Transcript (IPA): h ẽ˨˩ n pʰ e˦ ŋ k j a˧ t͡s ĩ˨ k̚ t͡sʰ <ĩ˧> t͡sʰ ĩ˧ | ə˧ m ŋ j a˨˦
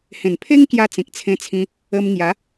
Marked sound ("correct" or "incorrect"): incorrect